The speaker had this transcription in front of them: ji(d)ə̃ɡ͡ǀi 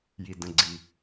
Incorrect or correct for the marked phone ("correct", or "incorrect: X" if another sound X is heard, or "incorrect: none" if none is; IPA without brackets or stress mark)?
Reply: correct